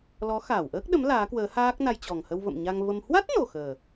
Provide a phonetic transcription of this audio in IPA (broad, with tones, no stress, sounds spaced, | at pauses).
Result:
l ɔ˨˦ x aː˧˩ w ʔ əː˦˥ k̚ ɗ ə˨˦ m l aː˨˦ k w əː˨˦ h aː˦˥ k̚ n a˧ j t͡ɕ ɔ˨˩ ŋ h ə˧ w v ə̰˧˨ m ɲ a˧ ŋ v ə˧ m h w a˦˥ t̚ n o˨˩ x əː˨˩